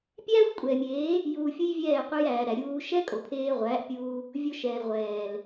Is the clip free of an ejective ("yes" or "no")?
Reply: no